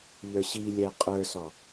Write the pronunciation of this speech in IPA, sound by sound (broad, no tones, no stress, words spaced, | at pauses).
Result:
ʎə˞ɕilʲɛ qʼə˞sɔ